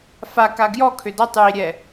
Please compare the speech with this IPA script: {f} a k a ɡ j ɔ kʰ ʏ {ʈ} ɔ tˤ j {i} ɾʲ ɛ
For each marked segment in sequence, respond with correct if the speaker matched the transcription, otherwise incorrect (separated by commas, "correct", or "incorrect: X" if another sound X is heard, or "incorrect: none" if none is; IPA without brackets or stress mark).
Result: correct, incorrect: d, correct